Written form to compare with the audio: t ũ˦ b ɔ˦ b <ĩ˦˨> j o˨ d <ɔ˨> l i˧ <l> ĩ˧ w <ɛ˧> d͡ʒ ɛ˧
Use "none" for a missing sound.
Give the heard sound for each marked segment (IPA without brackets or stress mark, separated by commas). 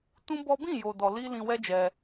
ĩ˦˨, ɔ˨, l, ɛ˦